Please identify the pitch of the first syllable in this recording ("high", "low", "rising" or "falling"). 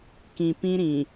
low